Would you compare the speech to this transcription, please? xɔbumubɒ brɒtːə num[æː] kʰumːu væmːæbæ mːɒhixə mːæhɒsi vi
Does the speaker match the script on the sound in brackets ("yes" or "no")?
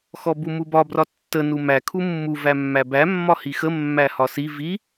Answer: no